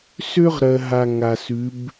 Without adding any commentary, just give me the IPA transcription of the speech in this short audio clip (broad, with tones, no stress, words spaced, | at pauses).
sø˥ʁ ɾɜ˧ɦa˧ ŋa˧sʉ˧˥b